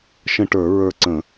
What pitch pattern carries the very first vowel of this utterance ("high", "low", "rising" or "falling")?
falling